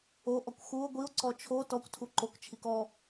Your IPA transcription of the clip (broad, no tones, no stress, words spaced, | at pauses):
oʔɔkʷ xuo̯ ɡʷio̯ǀɔ t͡ʃʰo tɔkʷtʰu ǃokt͡ʃʰik ɔ